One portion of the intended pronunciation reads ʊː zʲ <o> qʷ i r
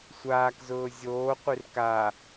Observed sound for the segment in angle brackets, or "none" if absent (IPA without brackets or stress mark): oː